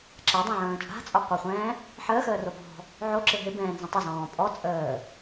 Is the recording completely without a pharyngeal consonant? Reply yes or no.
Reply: no